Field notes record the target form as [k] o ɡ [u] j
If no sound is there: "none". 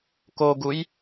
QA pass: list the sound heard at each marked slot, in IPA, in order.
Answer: k, u

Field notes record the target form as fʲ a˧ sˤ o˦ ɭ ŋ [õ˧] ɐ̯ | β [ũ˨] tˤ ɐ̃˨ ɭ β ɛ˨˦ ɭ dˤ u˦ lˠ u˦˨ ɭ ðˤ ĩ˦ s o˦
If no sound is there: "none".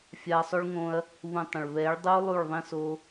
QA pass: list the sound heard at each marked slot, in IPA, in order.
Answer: õ˦, ũ˨

